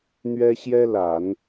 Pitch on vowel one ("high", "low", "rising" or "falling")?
high